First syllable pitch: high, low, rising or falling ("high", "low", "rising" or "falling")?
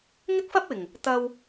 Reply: high